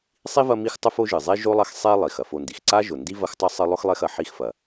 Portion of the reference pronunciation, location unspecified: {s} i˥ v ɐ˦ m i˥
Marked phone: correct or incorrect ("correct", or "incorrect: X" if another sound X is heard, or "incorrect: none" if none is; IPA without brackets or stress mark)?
incorrect: sˤ